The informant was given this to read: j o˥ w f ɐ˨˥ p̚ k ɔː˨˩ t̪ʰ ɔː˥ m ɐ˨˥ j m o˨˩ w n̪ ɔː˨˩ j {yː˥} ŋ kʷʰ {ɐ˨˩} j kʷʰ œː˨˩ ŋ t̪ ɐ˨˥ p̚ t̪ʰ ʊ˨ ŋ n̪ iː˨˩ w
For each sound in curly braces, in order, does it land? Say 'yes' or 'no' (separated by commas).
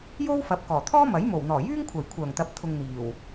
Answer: yes, yes